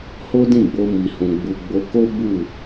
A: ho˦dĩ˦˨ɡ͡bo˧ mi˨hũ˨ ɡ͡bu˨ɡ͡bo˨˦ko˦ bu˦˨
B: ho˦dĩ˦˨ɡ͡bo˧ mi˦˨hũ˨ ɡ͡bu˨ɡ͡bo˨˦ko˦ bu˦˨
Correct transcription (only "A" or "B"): A